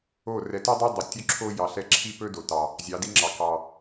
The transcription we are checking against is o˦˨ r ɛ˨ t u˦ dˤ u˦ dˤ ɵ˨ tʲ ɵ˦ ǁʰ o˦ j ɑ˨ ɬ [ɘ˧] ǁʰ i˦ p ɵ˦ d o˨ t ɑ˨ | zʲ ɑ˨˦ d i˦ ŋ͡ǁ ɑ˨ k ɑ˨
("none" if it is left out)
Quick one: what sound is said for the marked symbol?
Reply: ɛ˧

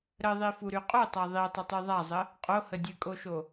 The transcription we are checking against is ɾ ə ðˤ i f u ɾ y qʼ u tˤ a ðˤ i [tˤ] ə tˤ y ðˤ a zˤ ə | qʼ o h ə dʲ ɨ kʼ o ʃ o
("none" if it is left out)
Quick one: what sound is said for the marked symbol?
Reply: tˤ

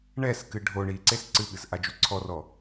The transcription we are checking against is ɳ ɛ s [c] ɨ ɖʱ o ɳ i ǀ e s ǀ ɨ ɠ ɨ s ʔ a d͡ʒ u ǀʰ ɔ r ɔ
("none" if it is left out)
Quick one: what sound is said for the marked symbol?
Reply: k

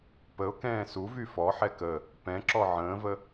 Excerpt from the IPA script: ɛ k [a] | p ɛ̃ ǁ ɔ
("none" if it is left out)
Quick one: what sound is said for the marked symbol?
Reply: ə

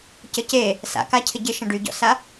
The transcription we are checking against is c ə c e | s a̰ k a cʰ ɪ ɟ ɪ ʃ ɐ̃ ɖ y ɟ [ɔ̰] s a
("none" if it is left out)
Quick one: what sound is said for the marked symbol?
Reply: ɔ̰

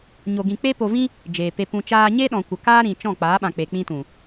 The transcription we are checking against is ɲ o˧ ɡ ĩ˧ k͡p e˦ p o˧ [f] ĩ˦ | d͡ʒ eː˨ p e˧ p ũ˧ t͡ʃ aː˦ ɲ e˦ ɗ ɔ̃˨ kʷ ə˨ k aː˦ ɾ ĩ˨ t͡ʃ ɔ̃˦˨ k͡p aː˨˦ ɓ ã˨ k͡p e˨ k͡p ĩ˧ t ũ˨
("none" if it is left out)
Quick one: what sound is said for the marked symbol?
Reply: v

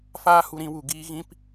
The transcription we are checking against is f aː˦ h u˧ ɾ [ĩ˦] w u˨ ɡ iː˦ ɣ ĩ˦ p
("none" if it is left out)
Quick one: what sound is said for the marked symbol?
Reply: ĩ˧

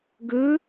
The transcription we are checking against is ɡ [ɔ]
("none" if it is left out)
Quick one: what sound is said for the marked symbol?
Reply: ɵ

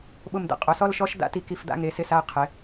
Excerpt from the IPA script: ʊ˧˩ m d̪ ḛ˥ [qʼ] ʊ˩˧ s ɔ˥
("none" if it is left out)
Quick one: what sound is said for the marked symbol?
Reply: qʼ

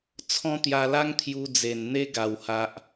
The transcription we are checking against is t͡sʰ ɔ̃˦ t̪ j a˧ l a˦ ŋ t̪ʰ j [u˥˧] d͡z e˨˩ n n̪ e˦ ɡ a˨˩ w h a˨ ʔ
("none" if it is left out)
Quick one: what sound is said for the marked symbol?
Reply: u˧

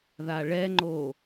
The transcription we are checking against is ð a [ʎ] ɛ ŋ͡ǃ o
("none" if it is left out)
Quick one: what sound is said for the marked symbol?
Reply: ɭ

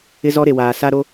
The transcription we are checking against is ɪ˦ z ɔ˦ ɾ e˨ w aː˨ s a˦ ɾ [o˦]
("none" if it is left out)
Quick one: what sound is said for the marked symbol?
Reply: o˦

